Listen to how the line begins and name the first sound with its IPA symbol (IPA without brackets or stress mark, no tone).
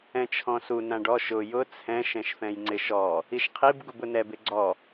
ɛ̃